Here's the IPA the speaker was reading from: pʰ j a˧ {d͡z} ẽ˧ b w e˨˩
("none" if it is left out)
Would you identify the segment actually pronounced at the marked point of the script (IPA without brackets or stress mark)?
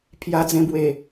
d͡z